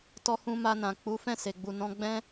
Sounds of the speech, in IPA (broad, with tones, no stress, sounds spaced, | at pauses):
t ɔ˧ h ũ˧ m a˧ n ã˨ k͡p u˨˦ f ɛ̃˦˨ s e˨ ɡ͡b u˨ n ɔ̃˧ ɡ͡b ɛ̃˦